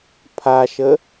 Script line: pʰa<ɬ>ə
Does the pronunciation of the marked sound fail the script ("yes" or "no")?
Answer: yes